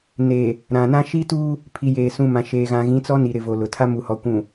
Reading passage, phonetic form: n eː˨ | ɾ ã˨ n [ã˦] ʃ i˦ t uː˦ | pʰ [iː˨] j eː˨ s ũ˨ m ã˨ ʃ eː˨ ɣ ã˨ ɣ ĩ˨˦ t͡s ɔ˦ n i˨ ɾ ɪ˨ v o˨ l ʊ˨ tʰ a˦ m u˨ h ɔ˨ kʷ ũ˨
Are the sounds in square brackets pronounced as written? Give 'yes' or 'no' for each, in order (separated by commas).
yes, no